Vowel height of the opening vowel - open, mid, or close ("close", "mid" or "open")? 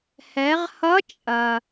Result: mid